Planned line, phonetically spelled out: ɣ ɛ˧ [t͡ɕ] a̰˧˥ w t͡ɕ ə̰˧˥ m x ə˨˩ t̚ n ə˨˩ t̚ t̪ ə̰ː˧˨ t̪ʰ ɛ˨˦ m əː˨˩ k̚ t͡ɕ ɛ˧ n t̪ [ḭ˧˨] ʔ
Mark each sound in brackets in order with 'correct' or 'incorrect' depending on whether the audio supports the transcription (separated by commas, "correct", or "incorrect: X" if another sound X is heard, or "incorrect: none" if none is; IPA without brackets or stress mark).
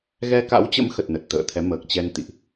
incorrect: k, correct